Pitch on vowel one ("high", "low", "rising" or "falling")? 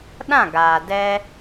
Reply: falling